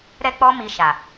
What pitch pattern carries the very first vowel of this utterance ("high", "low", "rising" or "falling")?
high